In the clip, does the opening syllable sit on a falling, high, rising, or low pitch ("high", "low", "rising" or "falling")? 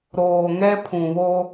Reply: low